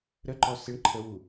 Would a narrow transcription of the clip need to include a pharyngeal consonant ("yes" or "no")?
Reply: no